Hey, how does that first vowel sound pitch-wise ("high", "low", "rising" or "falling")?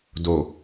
low